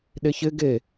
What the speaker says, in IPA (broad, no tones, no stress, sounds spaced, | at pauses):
ɗ e ç ɪ ɡ e